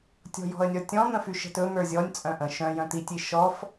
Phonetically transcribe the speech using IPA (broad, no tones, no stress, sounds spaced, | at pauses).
tʲ ɔ̤ j ɔ̤ ə̯ nʲ ɔ tʲ ɔ̃ n̪ ə̃ f y ʃ ə̤ t ɵ n̪ ə˞ zʲ ɔ nʲ t͡sʼ œ̃ ʔ ə̃ ʃ œ̃ j œ̃ t̪ i tʲ i ʃ ɔ f